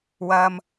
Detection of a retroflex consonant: absent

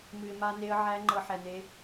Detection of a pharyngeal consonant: present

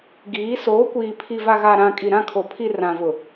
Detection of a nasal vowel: present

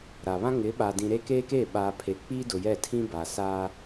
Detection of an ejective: absent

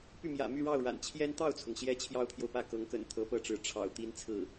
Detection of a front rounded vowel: present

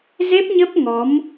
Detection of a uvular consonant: absent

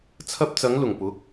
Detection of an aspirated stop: present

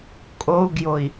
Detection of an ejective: present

